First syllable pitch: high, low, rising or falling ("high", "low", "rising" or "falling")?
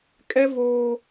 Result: high